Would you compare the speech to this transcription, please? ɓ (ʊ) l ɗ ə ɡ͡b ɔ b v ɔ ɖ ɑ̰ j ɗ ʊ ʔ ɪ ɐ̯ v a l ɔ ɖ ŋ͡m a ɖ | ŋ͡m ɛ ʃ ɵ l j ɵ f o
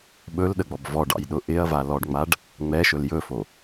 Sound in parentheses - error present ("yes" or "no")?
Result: yes